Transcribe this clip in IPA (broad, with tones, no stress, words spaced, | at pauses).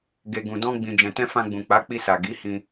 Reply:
ɡe˧ɡũ˧dɔ̃˦ ɡ͡bĩ˧d͡ʒɛ̃˧tɛ̃˦ fã˧ɡ͡bũ˨ k͡pa˨˦k͡pi˧sa˨ ɡi˨˦hĩ˧